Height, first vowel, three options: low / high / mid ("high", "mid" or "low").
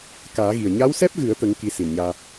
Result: low